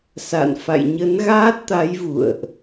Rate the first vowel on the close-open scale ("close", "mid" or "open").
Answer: open